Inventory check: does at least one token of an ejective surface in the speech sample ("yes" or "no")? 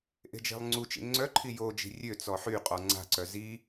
yes